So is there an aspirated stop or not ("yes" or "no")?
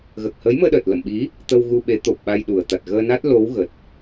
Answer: no